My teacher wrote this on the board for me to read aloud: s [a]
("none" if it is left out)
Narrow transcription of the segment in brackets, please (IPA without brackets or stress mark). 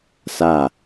a